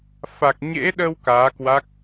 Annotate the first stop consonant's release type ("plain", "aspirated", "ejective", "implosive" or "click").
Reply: plain